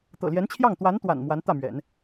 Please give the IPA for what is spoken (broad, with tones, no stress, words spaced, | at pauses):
t̪ɤ̰˨˩ljɛ˧˥nt͡ɕʰjɑ˥˩ŋ t̪wa˧˥n t̪wa̰˨˩n mwa˧˥nt̪ä˥˩mɥɛ̰˨˩˦n